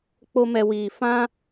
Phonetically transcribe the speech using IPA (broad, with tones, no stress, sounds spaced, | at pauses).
k͡p o˦ m ɛ˧ w iː˨ f ã˦